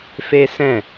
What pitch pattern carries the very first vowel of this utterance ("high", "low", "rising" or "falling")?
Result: high